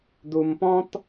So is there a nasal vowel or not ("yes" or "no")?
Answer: yes